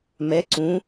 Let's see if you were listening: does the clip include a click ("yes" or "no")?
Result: yes